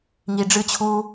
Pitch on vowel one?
low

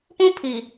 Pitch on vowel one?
high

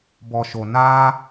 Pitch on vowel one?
low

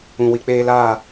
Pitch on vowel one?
low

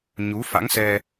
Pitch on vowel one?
rising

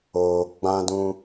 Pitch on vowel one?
low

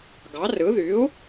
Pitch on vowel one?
rising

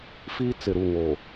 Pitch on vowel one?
high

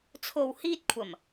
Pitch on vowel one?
low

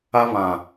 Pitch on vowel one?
high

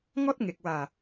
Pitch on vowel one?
high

